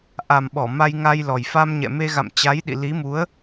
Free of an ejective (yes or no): yes